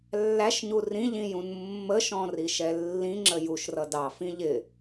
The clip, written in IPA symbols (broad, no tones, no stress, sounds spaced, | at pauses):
lː æ ʃ ɲ u r ĩ ʎ ĩ j ũ n mː ə ʃ ɔ̃ r i ʃ ɛ lː ĩ ŋ͡ǁ ə j u ʃ r ʌ d ɑ f ĩ ʎ ɪ